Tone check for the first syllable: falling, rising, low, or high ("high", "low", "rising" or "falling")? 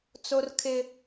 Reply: high